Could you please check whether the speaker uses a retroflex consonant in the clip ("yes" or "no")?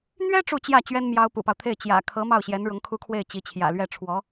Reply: yes